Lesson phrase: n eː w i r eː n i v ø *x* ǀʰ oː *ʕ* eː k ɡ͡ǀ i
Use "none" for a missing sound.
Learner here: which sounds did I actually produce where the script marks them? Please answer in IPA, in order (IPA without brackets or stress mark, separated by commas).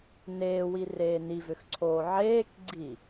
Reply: x, ʕ